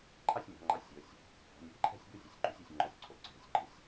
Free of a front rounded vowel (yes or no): yes